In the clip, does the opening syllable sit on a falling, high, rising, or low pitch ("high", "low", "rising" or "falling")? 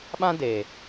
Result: high